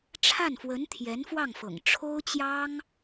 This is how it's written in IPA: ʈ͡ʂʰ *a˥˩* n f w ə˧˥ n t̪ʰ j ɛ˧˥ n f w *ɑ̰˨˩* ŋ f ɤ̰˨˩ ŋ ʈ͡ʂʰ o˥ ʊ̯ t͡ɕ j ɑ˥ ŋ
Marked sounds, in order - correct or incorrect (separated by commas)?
correct, incorrect